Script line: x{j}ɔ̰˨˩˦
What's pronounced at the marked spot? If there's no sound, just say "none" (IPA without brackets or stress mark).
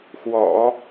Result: w